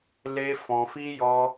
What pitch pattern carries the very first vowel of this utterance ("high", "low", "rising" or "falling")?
high